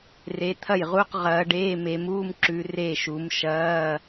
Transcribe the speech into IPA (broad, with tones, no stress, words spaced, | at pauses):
re˨˦t̪ʰɐ˥˩jʁu˧˥˧q ʁɐː˨˦ɖeː˧˥˧ me˨˦muː˧˥˧mǁʉ˨˦ re˥˩ ʃu˨˦m ʃɐː˧˥˧